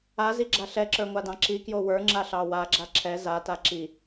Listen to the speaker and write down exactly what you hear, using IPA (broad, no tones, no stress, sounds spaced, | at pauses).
a z i ɡ͡ǁ a ɬ ɛ ǁ ə˞ ŋʷ a d ɑ̃ ǁ i k j o w ə˞ ŋ͡ǁ a ɬ ɑ w a ɡ͡ǁ a ǁʰ ɛ z a t a ǁ i